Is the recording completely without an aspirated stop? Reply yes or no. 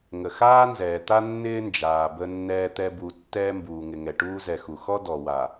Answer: yes